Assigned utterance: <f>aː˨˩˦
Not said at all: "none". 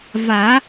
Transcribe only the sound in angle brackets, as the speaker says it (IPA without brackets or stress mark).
v